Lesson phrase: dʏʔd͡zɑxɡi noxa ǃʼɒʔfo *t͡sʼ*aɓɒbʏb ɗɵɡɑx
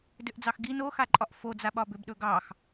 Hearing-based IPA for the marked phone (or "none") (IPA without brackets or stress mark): d͡z